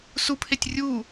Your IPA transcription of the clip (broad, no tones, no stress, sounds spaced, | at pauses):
s u pʰ e tʲ rʲ u